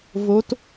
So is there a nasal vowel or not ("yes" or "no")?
no